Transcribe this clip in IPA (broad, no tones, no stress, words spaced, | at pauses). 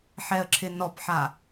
ħɛə̯ǁʰɪnɔpħa